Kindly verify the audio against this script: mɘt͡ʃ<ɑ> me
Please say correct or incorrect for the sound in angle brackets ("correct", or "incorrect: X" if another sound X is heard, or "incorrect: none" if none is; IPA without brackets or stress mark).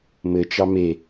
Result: correct